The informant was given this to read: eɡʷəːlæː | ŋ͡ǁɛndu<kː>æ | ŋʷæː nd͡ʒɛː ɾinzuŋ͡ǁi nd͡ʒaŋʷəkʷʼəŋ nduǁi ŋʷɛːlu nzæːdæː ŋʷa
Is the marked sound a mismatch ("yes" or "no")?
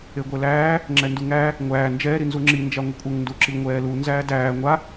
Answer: yes